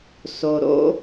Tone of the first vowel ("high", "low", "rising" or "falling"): low